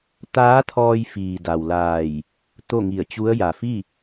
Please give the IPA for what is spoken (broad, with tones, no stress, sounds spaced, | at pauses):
t̪ aː˧˥ t̪ʰ ɔː˧ j f iː˩ d a˩ w l aː˧˩ j | t̪ o˥˨ ŋ i˧˩ ə̯ t͡ɕ u˧˥ ə̯ j a˩ f i˥˨